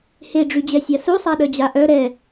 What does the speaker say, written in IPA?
heɖ͡ʐyd͡ʑɛsʲa susˤaɗœd͡ʑa ʔœ ɾɛ

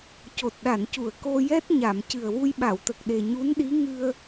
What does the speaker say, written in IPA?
co˨˩t̚ɗa˨˩˨ncu˨˩˨ə̯ ko˧jɛ˦˥t̚ ɲa˨˩˨m cɨ˨˩ə̯wu˧jɓa˨˩˨wt̪ə˨˩k̚ ɗe˨˩ɲu˧˥nɗi˧˥ ŋɨ˧ə̯

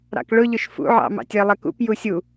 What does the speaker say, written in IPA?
ɾɑ̰kɭʊʎʊʃ fṵʕɑ̰mɑ̰tʲ ɜlˠɜkṵp jusʲu

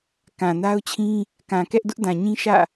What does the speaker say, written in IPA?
kã˨na˦ʊ̯t͡ɕʰĩ˦ | kã˨kɛ˦ʔ dʊ˦ʔdã˨ɲĩ˦ ʃä̰˦˨

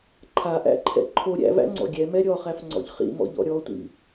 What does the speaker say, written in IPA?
ǃʰaʔæ̰ǃʰɛ̰ ǃʰo ɾʲæ̰væ̰ŋ͡ǀɔ̰ ɡʲɛmɛ ɾʲɔχæfŋ͡ǀɔ̰ʎ χḭmɔ̰ʎɔ̰ ɾʲɔtʷḭ

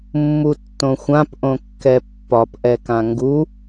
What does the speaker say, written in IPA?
mːutːõxʷãp ʔõkːɛpːɒp ʔɛkãŋɡu

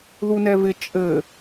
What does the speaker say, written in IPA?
ðunɛvɪ t͡ʃʼɘ

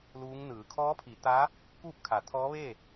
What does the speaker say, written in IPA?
luː˧˥ŋnɯː˩˧ kʰɔː˧˥pʰi˩˧t̪a˧˥ | kuː˥˨p̚kʰa˩˧t̪ʰɔː˧˥ ʋe˥˨

